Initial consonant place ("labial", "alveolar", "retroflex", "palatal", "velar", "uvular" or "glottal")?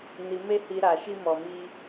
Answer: alveolar